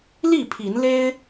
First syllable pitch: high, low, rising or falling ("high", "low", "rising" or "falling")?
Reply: falling